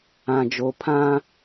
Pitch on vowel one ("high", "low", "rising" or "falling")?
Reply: low